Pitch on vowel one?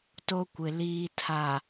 high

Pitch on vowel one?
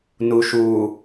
low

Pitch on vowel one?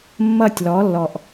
falling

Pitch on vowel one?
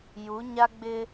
rising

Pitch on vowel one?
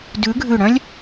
rising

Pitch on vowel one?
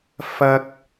high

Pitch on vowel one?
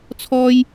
high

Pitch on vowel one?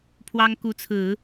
high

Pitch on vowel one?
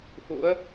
rising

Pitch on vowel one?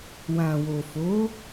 low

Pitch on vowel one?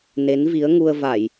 rising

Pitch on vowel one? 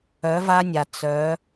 rising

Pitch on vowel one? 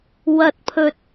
low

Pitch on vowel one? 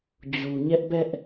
low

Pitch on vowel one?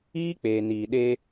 high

